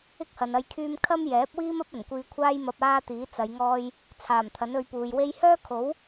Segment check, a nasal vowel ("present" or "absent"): absent